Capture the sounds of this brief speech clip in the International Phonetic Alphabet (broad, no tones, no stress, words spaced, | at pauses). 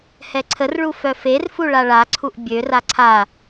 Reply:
hɛǀʰərɭu fœferfu ɭaɭaǀʰuʔ bʲø raǀʰa